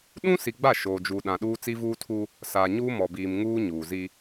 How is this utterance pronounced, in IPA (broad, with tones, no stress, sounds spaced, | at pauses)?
ɗ ũ˦ s i˨ ɡ͡b a˦˨ ʃ oː˨ d͡ʒ u˨ ɗ ã˨ ɗ uː˦ t͡s i˦ v uː˦ tʰ u˦ | s aː˨ ɲ uː˦ m ɔ˨ b iː˨ m ŋ uː˦ ɲ uː˨ z i˦